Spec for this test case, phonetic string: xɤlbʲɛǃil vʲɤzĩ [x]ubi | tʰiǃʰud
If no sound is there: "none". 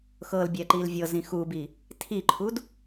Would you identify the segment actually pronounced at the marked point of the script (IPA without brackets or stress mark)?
x